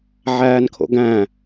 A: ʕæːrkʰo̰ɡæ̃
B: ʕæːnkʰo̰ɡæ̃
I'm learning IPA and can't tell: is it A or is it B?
B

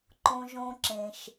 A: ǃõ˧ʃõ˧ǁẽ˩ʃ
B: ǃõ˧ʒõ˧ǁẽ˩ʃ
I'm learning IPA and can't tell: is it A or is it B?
B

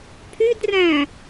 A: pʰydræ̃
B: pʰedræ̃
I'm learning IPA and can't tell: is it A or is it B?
A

